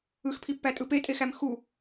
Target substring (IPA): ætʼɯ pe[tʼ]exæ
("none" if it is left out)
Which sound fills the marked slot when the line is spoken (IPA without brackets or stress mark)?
tʼ